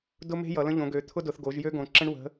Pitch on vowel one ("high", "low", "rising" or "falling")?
high